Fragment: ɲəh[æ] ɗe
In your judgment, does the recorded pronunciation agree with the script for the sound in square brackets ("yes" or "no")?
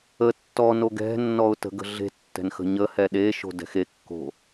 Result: no